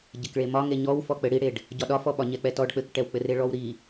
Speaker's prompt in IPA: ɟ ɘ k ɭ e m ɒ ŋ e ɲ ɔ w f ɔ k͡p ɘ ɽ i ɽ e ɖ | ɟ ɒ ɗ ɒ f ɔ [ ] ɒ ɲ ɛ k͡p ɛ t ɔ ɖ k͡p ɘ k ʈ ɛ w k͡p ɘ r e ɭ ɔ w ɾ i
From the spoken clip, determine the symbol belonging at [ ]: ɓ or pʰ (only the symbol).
ɓ